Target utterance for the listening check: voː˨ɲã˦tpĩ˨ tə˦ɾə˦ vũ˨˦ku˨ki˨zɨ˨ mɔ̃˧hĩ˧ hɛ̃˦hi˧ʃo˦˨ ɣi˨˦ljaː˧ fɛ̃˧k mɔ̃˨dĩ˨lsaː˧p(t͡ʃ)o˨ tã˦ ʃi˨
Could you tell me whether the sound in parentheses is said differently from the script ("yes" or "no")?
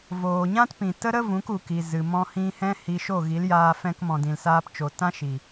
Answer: no